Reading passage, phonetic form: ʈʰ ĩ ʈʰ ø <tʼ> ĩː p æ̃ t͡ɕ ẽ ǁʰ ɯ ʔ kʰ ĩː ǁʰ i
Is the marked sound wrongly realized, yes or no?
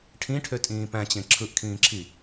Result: no